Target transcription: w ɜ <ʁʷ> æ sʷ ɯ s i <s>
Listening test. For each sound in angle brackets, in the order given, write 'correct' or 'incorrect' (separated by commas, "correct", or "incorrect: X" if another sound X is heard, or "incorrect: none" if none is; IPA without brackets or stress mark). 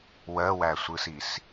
incorrect: w, correct